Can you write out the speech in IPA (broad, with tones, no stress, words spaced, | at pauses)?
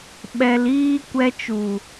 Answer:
ɓɛ˧liː˦ kʷɛ˧t͡ʃu˨